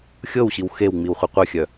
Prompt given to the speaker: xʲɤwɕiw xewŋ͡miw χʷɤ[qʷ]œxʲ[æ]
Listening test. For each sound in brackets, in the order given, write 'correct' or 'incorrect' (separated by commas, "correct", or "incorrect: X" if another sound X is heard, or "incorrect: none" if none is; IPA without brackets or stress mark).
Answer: correct, incorrect: œ